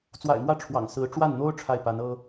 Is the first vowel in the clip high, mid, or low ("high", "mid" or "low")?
low